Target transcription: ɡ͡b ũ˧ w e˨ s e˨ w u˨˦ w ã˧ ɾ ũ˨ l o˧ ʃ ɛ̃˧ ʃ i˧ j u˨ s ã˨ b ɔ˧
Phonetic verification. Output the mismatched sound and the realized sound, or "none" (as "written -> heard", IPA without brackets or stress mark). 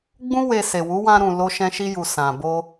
ɔ˧ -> o˧